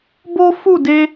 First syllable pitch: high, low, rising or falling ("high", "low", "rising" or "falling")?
high